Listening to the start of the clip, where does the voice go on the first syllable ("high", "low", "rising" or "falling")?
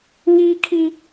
high